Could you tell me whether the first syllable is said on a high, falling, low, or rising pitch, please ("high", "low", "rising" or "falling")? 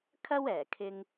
high